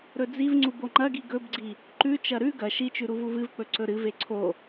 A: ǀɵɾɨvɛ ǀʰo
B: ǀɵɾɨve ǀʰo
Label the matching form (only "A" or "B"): B